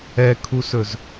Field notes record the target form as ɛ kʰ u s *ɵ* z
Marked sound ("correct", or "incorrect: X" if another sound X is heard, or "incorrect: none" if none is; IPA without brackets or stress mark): correct